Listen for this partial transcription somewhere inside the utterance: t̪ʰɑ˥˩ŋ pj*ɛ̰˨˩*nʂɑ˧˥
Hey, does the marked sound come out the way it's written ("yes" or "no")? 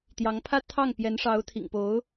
no